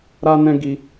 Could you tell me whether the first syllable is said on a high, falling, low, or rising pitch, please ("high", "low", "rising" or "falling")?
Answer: high